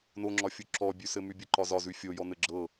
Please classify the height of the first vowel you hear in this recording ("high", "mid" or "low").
mid